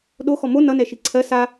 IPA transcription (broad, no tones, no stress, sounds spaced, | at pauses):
ɗ o x ɔ m o n ʌ n ɛ ʃ i ǀʰ ɜ s a